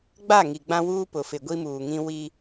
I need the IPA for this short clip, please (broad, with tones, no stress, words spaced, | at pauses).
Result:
ɡ͡ba˦˨ŋi˨ ɡ͡bã˦wuː˦pʊ˨ fɪ˨ɡʷi˦muː˨ŋĩ˦ wi˦